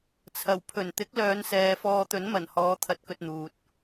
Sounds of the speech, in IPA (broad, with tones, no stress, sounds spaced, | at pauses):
t͡sʰ ɐ˨˩ w pʰ ɵ˨˩ n t̪ ɪ˨˥ k̚ l œː˨˧ n s ɛː˨ f ɔː˧ t̪ ɵ˨˥ n m ɐ˨˩ n h ɔː˨˧ t̪ʰ ɐ˧ t̚ k ɵ˧ t̚ n̪ uː˨ t̚